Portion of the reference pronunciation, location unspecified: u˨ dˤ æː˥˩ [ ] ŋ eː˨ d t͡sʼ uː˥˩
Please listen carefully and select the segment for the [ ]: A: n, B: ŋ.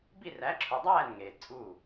A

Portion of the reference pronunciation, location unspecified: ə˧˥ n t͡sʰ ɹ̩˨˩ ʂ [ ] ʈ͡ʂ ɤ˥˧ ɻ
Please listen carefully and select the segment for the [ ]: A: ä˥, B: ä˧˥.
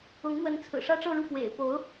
A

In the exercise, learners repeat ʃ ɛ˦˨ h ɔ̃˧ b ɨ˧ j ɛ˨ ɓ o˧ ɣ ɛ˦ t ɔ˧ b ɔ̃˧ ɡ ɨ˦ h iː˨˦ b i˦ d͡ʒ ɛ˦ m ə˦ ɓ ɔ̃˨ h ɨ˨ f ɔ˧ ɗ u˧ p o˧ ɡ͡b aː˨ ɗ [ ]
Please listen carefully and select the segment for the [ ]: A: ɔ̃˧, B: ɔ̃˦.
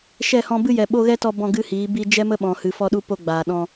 A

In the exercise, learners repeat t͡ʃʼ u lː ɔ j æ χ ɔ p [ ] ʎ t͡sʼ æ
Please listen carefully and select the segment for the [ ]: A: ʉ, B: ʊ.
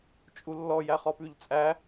A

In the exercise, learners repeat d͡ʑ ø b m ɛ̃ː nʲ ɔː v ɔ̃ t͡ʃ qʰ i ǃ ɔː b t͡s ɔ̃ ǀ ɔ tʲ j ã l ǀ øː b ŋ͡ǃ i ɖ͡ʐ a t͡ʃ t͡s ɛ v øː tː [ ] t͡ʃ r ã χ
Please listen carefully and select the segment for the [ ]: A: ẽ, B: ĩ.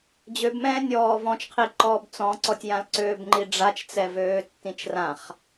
B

